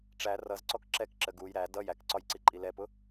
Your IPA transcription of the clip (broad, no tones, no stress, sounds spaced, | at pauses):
ʈ͡ʂ æ r ʌ z ǀ ɔ k ǁ ɛ k ǁ ə ɡ u j ɾ æ d ʌ j æ k ǀ ɒ j ǀ i ǃʼ i l ɛ p ʊ